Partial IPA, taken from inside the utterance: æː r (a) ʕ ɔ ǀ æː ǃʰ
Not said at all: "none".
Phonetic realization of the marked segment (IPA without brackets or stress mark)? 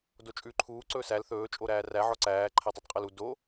æ